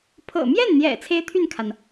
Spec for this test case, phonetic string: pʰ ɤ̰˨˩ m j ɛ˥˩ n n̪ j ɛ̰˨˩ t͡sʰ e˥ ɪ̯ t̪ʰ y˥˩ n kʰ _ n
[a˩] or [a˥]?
a˩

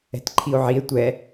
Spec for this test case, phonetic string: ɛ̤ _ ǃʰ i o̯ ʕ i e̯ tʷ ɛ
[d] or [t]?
t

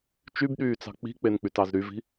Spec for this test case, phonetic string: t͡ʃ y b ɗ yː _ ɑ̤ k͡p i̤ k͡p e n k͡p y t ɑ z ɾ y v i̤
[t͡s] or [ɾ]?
t͡s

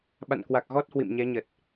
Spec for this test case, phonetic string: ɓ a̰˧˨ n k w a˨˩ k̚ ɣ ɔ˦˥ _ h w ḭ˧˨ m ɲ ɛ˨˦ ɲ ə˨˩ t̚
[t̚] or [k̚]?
t̚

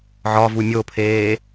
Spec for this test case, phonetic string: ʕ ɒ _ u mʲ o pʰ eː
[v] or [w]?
v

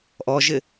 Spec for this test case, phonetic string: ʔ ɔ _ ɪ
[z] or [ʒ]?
ʒ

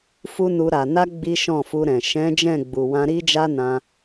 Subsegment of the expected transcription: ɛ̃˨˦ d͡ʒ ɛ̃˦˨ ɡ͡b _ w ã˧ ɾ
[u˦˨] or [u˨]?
u˨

